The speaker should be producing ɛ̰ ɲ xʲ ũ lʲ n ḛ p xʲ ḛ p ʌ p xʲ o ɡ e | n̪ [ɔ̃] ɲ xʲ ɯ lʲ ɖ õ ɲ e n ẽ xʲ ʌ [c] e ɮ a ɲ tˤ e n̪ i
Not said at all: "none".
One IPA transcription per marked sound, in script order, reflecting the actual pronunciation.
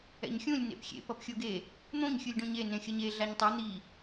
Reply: õ, ɲ

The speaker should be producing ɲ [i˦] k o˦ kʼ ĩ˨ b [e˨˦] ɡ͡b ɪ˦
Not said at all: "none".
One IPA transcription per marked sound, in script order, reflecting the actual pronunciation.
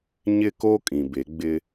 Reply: ɪ˦, e˨˦

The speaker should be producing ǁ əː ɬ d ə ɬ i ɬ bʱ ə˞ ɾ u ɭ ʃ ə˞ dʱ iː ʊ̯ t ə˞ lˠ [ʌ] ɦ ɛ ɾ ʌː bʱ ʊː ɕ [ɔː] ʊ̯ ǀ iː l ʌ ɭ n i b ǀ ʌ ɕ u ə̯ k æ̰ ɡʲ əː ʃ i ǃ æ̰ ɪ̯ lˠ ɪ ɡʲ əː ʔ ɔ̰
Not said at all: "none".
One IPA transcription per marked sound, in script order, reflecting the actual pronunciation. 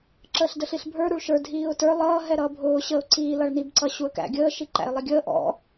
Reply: ʌː, əː

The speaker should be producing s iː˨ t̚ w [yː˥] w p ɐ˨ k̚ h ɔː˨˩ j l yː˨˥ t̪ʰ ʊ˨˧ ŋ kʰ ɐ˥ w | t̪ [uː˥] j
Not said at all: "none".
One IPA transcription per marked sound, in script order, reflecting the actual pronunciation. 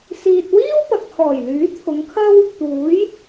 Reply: iː˥, uː˨˥

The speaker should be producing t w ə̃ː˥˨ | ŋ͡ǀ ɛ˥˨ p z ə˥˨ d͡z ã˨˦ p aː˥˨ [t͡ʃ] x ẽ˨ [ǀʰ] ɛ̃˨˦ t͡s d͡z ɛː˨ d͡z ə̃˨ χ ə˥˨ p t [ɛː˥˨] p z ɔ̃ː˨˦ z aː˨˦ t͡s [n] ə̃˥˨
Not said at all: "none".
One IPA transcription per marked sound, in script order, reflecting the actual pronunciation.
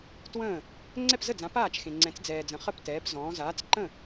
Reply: t͡ʃ, ŋ͡ǀ, ɛː˨˦, ǃ

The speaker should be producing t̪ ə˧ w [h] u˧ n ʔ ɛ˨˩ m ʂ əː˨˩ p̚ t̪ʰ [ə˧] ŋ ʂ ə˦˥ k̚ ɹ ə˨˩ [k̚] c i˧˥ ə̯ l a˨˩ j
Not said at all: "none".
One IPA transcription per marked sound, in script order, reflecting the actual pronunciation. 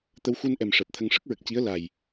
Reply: x, ə˧, k̚

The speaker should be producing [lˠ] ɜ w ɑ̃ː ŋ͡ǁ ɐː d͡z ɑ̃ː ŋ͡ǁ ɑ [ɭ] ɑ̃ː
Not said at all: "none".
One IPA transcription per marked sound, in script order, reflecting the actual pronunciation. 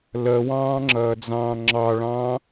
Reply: l, ɭ

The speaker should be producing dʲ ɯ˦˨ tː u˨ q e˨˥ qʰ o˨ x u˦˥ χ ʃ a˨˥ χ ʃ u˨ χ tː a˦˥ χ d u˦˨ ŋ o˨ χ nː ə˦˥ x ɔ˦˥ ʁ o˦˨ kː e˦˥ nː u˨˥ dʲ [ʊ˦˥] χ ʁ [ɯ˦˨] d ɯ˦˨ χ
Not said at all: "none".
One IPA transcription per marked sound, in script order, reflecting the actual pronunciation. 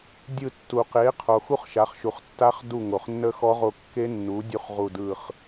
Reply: u˦˥, u˦˨

